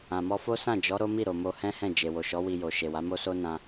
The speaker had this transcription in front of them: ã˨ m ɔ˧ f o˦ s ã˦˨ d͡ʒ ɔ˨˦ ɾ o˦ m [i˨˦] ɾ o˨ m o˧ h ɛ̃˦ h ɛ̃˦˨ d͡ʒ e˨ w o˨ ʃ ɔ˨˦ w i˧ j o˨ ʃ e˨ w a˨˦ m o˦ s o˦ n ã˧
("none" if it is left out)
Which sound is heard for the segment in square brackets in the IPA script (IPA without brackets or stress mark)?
i˦˨